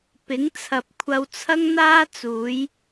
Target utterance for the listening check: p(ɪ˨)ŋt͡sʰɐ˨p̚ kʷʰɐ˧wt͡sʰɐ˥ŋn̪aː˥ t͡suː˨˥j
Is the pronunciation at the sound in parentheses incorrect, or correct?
incorrect